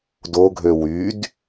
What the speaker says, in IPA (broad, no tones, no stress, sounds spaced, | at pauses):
d o ɡʱ ø w y d